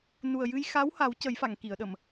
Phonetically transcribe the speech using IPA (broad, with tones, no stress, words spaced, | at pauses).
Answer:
nu˨˩ə̯jɨ˧jxa˧˥w ha˨˩˦w cə˨˩˦jfa˨˩˨ŋ ki˨˩˨ə̯ɗə˨˩˨m